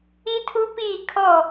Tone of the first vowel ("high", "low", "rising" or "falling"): high